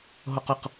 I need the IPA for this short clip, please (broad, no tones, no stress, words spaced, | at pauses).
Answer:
ɦoqʊq